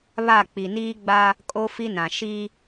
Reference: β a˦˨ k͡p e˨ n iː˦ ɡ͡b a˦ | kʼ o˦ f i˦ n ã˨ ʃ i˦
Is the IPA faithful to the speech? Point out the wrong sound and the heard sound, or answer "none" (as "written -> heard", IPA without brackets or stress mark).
e˨ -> i˨